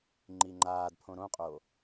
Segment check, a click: present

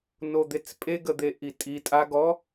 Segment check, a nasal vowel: absent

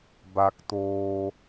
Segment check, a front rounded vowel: absent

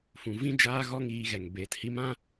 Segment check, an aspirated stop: absent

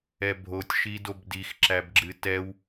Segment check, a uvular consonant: absent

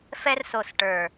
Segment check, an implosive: absent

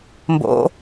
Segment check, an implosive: absent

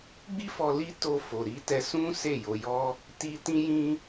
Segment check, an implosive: absent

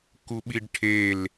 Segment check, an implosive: present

